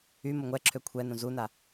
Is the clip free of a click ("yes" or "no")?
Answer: no